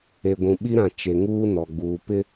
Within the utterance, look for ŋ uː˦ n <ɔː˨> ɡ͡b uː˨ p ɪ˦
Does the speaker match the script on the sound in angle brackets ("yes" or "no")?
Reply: no